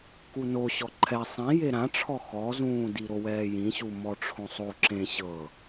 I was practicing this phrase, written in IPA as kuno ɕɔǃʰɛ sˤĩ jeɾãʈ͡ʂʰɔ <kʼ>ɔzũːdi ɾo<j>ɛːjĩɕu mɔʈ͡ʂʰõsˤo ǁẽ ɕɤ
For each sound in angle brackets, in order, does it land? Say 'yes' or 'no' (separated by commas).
no, no